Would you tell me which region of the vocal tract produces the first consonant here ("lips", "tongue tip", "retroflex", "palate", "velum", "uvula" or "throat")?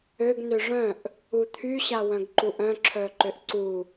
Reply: velum